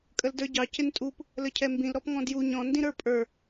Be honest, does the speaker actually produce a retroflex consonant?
no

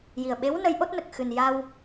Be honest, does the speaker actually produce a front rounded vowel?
no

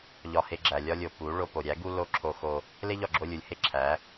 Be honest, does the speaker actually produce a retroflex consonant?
yes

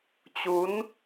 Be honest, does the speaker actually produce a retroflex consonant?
no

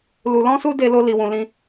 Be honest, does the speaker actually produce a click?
no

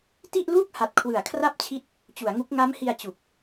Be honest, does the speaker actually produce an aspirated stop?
yes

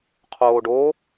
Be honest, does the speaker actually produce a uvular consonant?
yes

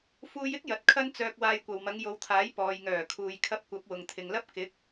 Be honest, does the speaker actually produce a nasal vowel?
no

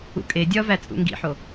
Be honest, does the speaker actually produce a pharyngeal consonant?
yes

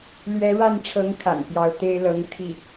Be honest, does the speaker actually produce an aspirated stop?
yes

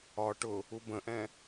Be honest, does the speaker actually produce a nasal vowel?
yes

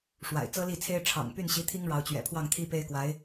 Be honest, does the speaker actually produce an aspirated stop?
yes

